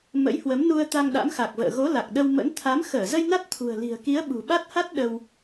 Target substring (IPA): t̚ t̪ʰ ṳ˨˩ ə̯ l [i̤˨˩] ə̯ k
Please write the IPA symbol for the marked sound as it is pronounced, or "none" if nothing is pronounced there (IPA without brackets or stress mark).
i̤˨˩